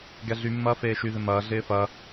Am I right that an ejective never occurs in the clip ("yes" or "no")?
yes